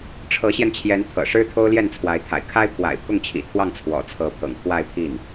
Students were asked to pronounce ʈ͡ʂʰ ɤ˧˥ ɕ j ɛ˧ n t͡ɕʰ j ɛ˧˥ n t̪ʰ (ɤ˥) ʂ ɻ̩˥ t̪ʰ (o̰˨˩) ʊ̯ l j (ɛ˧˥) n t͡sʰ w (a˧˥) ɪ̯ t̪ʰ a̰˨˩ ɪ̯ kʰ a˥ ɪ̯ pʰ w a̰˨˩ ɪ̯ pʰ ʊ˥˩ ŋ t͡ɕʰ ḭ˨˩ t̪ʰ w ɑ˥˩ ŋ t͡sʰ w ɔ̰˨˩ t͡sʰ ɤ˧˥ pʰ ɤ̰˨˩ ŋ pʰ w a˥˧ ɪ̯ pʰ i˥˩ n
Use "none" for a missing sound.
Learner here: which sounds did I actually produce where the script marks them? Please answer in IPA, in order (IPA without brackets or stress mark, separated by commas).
ɤ̰˨˩, o˥, ɛ˥˩, a˧˥